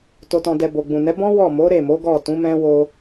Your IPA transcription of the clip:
to˨tɔ̃˨dɛ˨ bo˨ɡ͡bũ˨nɛ˨˦ bɔ̃˦ wɔ˦˨mo˨˦ ɾe˦˨mo˨˦ ɡɔ˦˨tũ˨˦mɛ̃˦ wo˦

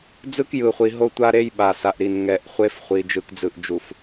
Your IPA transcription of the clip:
d͡zɯ˦kjɯ˨χʷi˨ ɦo˦tʷa˦ɾe˦j ɓa˨sa˨ʔɾi˨n ŋɛ˨ʔχʷe˦fχʷi˨ d͡ʒɯ˨kd͡zɯ˨ʔd͡ʒu˨f

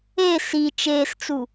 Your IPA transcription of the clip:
e si t͡ʃeːst͡su

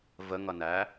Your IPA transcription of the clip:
vəŋʌnæ

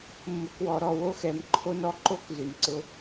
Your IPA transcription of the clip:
mːʊ˨kwɔ˨ɾɔ˦˨ wo˦xɛ˨mǃʰo˦nɔ˦ ǃo˦k zʉ˨nǀʊ˦

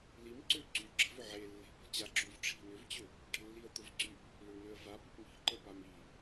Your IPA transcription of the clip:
limǀø ǀy ɡ͡ǁə̤vʏ ʕelːe̤ pə̤t͡ɕaǁyv ʈ͡ʂʰi̤nʏvt͡ɕʏ | ʈə̤lːiə̯t̪ʊvǀyp | lʏɳnøə̯va pʏpmi̤ǃə pami

